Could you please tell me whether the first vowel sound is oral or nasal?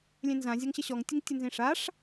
nasal